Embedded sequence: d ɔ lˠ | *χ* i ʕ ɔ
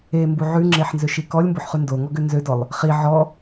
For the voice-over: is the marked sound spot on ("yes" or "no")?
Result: yes